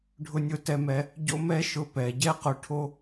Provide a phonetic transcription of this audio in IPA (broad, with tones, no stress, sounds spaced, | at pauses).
ɖʱ ʊ˧ nʲ ʊ˧ t ɛ˧ m ɛ˧ | ɟ o̰˦ m ɛ˦ ʃ ʊ˧ p ɛ˨ ɟ ɛ˦ q ʊ˧ ʈʰ o˦